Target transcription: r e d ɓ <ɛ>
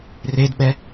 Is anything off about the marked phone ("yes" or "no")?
no